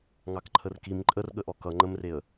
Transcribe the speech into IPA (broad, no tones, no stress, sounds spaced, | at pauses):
ŋ ɑ k ǃʰ ə r k i m ǃʼ ə r ɠ ə ʔ ɔ k ʌ ŋ͡ǃ ə m r e ə̯